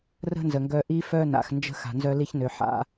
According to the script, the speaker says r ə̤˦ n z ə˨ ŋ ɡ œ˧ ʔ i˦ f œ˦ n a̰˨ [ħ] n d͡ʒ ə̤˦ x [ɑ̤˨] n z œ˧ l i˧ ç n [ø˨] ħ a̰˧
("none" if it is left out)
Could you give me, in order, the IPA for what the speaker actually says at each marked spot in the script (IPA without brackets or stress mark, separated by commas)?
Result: x, a̤˨, ø˨